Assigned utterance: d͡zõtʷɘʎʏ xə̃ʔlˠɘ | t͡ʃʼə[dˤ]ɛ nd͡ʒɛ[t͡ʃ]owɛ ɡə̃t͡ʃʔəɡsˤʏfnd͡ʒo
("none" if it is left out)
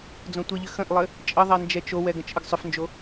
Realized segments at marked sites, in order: ðˤ, t͡ʃ

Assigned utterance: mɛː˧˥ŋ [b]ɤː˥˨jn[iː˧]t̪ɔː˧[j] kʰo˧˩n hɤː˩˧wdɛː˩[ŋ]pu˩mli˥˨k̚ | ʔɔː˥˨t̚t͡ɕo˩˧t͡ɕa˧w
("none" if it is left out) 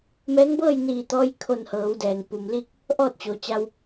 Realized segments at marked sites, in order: b, iː˧˩, j, ŋ

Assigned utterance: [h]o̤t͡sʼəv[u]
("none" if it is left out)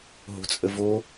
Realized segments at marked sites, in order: ɦ, o

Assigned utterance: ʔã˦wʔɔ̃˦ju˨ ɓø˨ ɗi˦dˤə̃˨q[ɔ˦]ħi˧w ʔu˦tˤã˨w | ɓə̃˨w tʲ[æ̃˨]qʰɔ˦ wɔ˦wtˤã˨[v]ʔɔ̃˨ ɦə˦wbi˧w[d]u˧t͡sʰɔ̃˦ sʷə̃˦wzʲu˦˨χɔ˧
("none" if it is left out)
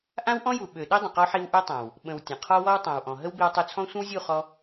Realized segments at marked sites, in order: ɔ˧, ə̃˨, w, tˤ

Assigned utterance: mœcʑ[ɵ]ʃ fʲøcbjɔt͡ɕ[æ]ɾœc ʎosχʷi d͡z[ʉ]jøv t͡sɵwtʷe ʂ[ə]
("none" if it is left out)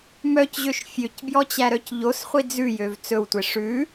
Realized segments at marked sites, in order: ø, æ, ʉ, ʉ

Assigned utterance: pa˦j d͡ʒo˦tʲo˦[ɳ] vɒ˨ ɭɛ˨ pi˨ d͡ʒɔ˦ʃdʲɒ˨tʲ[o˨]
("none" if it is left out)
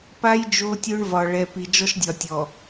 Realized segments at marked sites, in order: ɳ, ɔ˨

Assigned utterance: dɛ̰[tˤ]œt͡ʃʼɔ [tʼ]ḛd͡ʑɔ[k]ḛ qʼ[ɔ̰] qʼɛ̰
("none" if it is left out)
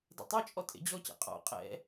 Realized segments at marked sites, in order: tˤ, tʼ, c, ɔ̰

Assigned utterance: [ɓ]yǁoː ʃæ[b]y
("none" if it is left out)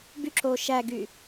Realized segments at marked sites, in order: b, ɡ

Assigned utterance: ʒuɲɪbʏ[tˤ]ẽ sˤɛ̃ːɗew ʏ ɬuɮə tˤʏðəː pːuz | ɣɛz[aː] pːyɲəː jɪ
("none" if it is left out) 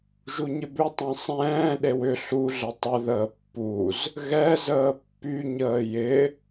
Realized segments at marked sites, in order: tˤ, əː

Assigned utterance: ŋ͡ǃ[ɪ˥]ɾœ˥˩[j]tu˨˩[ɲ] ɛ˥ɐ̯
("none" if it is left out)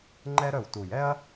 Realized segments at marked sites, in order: ɛ˥, w, j

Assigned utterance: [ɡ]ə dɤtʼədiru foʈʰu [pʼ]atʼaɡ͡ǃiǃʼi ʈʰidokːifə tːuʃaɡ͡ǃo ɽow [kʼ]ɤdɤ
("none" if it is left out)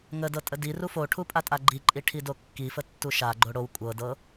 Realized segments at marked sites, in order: ŋ, pʼ, kʷʼ

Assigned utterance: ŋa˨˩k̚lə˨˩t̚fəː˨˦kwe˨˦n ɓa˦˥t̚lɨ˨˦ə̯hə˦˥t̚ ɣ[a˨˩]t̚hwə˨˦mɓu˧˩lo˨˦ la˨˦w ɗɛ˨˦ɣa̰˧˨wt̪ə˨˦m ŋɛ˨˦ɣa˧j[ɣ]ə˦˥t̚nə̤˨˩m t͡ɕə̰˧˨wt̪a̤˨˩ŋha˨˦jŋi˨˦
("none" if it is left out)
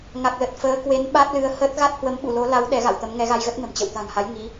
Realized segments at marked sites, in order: a˦˥, ɣ

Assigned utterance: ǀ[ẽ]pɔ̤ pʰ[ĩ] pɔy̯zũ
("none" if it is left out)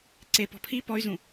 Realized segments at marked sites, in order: e, i

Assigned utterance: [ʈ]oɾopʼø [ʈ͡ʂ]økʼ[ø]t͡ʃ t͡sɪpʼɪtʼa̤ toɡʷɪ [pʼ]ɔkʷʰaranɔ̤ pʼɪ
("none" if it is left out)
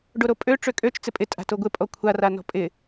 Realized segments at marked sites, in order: ɖ, ʈ͡ʂ, ø, pʼ

